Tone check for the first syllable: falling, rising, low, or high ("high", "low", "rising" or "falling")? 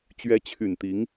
rising